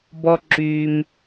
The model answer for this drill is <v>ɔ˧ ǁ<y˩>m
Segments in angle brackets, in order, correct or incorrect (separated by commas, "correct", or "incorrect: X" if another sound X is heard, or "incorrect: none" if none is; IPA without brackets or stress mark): incorrect: b, correct